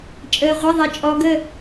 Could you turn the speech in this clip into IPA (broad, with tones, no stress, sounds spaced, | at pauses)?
t͡ʃʼ əː˩ ʁʷ ɪ˩˧˩ ðˤ e˩ t͡ʃʼ ɔ˩˧ ɡ ə˥˩